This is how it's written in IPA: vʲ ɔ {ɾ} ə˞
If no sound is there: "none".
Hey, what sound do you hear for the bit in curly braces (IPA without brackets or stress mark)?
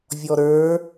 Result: ɾ